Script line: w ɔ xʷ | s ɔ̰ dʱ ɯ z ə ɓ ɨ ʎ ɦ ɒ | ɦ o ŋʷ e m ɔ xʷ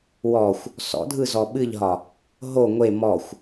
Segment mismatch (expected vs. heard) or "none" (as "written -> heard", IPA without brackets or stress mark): ə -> ɔ